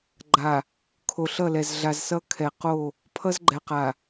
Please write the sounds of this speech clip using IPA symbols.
ɡ͡ǃa˨ | kʰo˨ɬʌ˦˨lɛ˨z ɮa˨zsʌ˦ kʰɛ˨qo˦˨ | pʰʌ˦zɡ͡ǃɛ˨qa˨

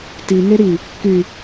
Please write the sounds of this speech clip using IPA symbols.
tiŋe ɾi | ky

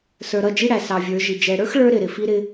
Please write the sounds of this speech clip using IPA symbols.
sə˞˨ɾʌ˦˨d͡ʒi˦ɽæ˨ sɑ˨vʲə˞˨˦ʒi˨ d͡ʒɛ˨ɽə˞˦x ɭə˞˦ ɾɪ˨ɾɪ˨ fi˦ɾɪ˦

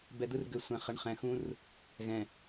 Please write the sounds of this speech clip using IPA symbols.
bɛ˨d̪ɯ˦rɡø˨ sʷɛ̃˨ χə˨ɳχɛ̃˨xũ˦r | ɣɛ̃˨

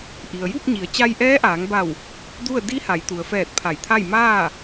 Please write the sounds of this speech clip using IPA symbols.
ʔi˩ə̯ju˥˨p̚ɲi˩˧ə̯ t͡ɕa˧jʔɛː˧˥ʔaː˩˧ŋba˧˩w | du˥˨ə̯ di˧˥ha˩˧jt̪u˩ə̯fɛː˧˩t̚ pʰa˧˩jt̪ʰa˥˨j maː˥˨

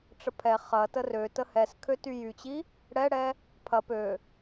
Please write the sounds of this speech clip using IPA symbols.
ʈ͡ʂəpʰɛ χɐ tərø təhɛs kʰøtyjyt͡ɕi | ɽɛɽɛ | pʰɐ pø

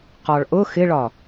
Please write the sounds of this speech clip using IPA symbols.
qɒɭʔʊ xɪɭɒ

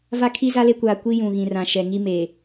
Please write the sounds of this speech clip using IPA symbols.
va˦kʰi˦za˦le˦ kʷaː˨ kʷi˦jũ˨ ɣĩ˨rã˨ʃɛ˨ ŋi˦meː˨

